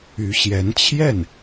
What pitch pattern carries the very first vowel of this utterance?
rising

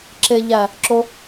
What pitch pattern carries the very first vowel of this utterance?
low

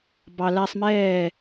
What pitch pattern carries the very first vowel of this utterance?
high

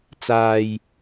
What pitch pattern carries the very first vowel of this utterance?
low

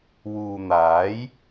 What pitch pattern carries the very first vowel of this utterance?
low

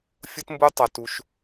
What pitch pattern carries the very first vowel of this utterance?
high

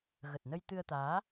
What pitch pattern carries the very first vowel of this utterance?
low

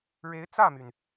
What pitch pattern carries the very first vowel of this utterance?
rising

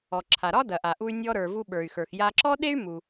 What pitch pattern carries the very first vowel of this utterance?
low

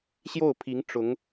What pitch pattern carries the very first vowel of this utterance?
falling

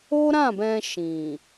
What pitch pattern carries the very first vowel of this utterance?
high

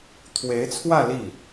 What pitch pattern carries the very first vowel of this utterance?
rising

